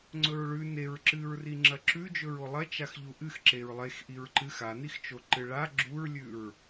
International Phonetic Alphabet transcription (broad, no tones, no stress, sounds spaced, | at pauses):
ŋ͡ǀ ɵ ɹ ɭ ʉ n e ɹ ǁ ɨ ɹ r i ŋ͡ǁ ɐ ǁ ʉ d͡ʒ ɵ ɹ o lˠ ɐ t͡ʃ a x ʎ u ʔ ɨ x ǁ e ɹ lˠ e x ʔ i ɹ ǃ ɨ x a n i x t͡ʃ o ǃ ɨ ɭ a ɡ͡ǁ u ɹ lʲ ʉ ɹ